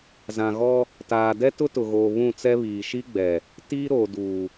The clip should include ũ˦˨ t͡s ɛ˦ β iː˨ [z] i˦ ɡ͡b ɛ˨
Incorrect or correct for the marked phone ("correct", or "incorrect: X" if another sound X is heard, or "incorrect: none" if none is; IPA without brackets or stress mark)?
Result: incorrect: ʃ